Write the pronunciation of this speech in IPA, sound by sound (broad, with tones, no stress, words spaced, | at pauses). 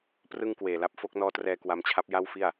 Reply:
prɯ˥˩ŋkweː˨˩la˦˥p̚ fo˦˥k̚nɔː˦˥trɛː˧ kwa˧mt͡ɕʰa˦˥p̚ ja˥˩wfi˥˩a̯